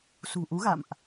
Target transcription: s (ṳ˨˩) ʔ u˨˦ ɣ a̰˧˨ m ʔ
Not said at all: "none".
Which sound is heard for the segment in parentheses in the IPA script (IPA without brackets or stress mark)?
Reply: ṳ˨˩